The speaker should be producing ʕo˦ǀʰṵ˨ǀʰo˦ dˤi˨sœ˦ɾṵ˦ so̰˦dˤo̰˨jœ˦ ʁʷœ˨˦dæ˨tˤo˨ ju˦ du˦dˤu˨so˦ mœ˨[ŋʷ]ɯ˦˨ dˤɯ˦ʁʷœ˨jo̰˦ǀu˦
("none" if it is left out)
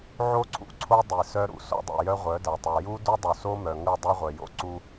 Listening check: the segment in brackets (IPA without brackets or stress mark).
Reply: ŋ